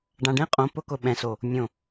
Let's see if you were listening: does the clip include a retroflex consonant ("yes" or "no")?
yes